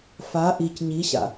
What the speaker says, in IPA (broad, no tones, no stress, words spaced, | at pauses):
fa ʔic ɲiɕa̰